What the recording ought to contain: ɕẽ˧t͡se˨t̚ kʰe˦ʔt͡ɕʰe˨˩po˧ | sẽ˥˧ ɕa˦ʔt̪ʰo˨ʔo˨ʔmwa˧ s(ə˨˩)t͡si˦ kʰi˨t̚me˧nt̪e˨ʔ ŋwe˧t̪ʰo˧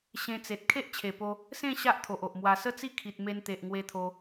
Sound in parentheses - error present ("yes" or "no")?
yes